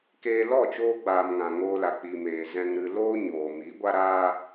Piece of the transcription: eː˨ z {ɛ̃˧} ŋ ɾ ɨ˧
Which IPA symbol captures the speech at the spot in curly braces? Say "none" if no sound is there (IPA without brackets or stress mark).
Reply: ɛ̃˧